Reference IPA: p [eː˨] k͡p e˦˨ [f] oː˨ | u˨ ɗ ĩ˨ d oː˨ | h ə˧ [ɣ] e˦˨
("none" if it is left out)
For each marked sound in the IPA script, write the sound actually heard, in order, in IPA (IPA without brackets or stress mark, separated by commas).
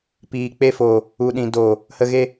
iː˨, f, ɣ